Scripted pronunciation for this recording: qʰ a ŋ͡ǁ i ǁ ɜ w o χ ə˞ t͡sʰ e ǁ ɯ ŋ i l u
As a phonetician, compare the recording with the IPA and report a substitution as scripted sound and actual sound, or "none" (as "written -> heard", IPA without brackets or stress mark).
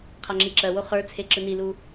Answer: ŋ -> n